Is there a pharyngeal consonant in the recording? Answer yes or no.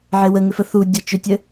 yes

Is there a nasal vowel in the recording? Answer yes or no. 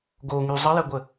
no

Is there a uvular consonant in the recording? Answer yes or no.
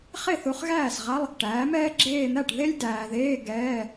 yes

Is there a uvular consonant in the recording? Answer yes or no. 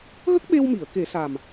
no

